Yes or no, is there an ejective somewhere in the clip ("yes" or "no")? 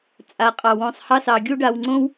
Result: yes